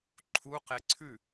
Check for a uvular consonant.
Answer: present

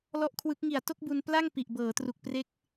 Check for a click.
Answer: absent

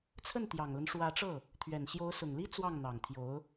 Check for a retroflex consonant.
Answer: present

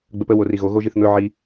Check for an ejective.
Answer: absent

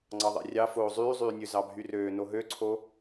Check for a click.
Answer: present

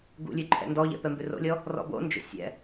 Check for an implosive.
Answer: absent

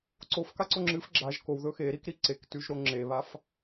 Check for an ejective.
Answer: absent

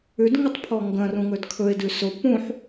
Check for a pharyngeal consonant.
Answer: present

